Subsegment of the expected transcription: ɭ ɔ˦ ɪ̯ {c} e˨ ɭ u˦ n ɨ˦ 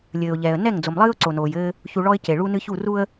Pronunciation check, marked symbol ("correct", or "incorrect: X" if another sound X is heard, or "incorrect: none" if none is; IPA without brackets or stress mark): correct